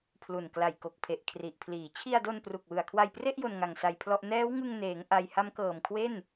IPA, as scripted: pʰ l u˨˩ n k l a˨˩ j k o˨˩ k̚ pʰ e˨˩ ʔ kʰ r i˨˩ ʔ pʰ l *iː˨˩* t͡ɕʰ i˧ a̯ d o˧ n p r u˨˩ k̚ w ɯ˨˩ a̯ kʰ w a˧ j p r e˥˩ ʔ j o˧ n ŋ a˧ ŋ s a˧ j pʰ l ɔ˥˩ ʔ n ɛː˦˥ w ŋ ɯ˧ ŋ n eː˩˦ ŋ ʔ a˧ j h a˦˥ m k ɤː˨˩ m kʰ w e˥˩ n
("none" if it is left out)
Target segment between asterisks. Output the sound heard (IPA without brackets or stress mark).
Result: iː˨˩